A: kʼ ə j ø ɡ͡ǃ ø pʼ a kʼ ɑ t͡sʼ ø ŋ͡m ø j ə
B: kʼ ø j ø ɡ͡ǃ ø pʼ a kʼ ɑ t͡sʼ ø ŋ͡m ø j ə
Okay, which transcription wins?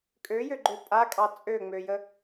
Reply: B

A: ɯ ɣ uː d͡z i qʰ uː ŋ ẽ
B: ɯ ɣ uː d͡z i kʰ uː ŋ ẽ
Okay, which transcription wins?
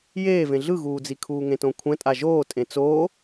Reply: B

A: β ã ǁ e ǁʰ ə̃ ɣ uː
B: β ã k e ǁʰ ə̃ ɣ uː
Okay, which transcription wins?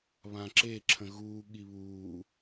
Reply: A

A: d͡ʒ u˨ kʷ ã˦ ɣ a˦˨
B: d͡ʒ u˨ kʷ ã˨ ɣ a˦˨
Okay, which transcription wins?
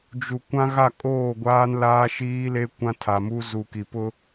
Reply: A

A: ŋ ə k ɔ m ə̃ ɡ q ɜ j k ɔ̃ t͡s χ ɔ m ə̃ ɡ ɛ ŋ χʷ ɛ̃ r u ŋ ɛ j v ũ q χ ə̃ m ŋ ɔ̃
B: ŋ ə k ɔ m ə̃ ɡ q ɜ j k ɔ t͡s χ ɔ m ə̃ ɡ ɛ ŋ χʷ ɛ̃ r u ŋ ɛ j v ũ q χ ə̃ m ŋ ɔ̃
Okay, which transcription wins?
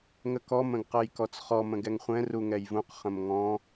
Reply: B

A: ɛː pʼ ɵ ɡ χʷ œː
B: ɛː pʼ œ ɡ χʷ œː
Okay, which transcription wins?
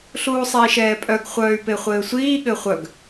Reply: B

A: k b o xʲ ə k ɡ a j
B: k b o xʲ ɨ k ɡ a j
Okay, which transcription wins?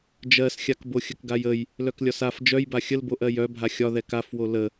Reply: A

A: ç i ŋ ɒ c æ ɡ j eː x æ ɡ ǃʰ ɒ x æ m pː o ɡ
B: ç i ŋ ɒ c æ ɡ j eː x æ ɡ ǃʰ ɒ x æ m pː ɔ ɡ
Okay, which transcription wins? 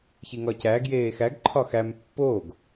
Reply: A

